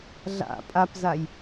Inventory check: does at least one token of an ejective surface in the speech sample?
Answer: yes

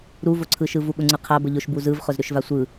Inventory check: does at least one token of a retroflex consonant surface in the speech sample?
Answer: no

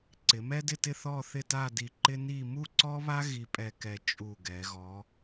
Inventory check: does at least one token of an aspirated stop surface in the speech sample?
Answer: no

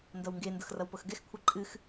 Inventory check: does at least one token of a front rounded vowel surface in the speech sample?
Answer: no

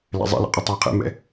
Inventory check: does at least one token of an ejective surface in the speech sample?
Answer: yes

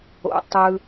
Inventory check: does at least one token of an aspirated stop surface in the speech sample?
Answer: no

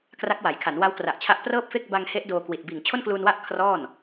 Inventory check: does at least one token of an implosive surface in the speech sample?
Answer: no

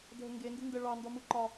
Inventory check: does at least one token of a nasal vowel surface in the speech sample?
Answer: no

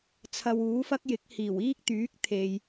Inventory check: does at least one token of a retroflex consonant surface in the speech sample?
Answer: no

